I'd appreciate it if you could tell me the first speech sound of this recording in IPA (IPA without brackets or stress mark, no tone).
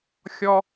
xʲ